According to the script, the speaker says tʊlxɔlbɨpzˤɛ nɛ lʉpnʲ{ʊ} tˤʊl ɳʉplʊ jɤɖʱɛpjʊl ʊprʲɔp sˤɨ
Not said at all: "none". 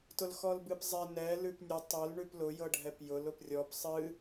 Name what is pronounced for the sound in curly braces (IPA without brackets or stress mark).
ʊ